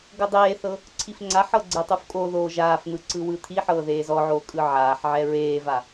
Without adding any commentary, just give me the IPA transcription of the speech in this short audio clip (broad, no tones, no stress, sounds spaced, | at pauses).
ɡ ɤ dˤ eː θ ɤ | ǀʰ i f ŋ͡ǀ a ħ ɤ ɡ͡ǀ ɛ tˤ u f kʼ o ð oː ʒ aː f n̪ ɯ ǀ ɯ w ɯ t̪ʰ i ħ ɤː ð eː z ɔ ʕ oː kʼ ɯ ʕ aː ħ ʕ ɛ ɹ eː v a